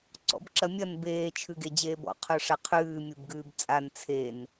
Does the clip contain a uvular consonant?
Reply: yes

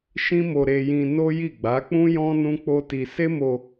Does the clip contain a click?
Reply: no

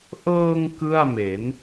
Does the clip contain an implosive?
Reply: no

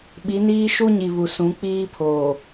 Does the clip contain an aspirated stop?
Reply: yes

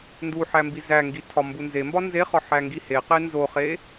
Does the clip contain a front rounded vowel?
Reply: no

